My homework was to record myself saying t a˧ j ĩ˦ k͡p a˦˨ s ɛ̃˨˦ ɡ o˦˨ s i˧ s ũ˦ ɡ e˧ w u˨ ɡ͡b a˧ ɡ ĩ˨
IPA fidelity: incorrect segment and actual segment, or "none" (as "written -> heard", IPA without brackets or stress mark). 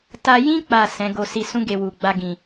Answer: none